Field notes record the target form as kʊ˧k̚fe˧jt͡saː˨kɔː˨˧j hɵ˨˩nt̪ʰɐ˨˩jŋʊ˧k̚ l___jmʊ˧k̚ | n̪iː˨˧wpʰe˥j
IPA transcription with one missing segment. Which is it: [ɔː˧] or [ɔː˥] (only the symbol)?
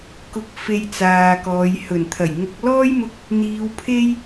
ɔː˥